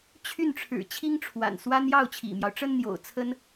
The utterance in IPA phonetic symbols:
t͡ɕʰy˥˩nʈ͡ʂʰɻ̩˨˩ t͡ɕʰi˥ŋʈ͡ʂʰwa̰˨˩nswa˥n jɑ˥˩ʊ̯t͡ɕʰḭ˨˩mjɑ˦ʊ̯ʈ͡ʂə˥n n̪jo̰˨˩ʊ̯t͡sʰə˥n

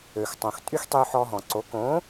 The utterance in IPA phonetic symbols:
ø˩xtˤõ˩xtʼy˥x tˤy˧ħɔ˧ɦɔ̃˩ǀo˩˥ kõ˩˥

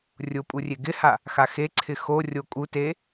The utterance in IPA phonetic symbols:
rʲʊ pʼurʲeɡɪha | xaxeǀʰɪ xo rʲokʼute

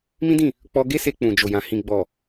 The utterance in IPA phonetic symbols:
mĩ˦dĩ˦˨ | k͡pɔ˧ɡe˦se˧ k͡pũ˨d͡ʒo˨jã˨ hĩ˨ɡ͡bɔ˨

